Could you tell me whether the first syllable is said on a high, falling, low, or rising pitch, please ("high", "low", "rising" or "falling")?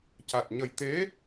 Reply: low